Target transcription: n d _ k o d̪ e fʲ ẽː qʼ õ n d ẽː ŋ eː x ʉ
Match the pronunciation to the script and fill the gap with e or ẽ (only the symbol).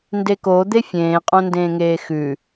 e